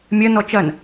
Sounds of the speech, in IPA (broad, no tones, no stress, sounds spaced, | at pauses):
mʲ ɐ n ɔ t͡ʃ ɐ n